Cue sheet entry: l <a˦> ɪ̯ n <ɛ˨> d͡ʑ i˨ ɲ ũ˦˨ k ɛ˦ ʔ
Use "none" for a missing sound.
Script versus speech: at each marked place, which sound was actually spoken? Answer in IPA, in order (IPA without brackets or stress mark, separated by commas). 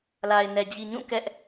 a˨, ɛ˨